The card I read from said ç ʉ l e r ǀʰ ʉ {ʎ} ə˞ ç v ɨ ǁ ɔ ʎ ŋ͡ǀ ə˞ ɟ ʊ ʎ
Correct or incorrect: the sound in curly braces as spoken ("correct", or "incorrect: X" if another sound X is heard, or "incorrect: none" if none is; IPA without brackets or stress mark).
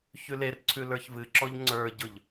incorrect: l